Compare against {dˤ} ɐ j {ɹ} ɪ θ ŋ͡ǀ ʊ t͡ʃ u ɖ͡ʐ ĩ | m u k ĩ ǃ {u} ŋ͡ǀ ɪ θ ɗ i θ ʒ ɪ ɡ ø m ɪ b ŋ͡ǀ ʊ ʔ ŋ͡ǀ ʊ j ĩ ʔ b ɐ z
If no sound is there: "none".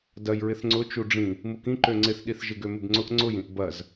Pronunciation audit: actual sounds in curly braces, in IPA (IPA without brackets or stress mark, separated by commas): d, ɹ, ø